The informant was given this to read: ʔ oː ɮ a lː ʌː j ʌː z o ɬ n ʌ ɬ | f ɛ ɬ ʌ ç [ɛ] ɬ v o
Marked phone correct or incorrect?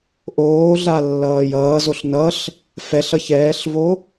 incorrect